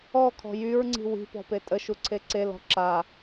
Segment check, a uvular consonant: absent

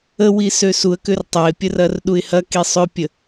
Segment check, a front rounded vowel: present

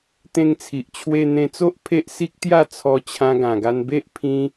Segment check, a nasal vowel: present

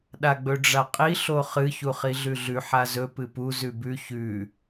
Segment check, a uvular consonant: present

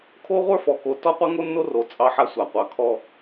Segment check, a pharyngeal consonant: present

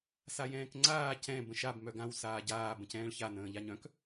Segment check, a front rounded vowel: present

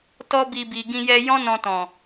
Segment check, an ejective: absent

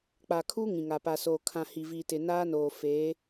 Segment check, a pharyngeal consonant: absent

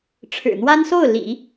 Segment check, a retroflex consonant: present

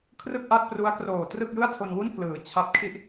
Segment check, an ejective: absent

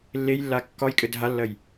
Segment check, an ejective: present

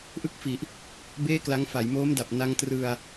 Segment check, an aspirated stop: absent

